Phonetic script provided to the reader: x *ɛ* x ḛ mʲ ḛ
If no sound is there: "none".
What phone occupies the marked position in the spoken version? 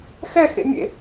ɛ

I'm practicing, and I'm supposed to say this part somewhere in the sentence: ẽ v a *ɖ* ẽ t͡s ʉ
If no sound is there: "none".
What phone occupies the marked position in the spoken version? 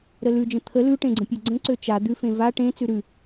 ʈ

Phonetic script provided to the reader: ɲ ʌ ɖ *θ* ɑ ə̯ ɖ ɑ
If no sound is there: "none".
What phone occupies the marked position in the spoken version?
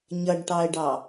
ʈ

